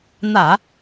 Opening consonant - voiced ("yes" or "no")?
yes